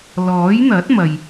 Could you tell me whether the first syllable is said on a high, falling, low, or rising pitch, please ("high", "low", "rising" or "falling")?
rising